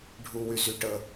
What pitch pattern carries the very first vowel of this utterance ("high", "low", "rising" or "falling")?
low